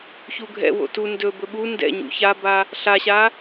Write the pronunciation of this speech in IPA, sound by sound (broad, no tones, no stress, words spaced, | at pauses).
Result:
çuɡʱɛ̰wo̰ tu ndɵbɵ ɓu ndɛ̰ɲṵ çaba | ɬaɕa